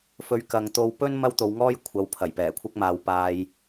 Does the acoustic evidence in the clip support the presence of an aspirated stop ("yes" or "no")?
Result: yes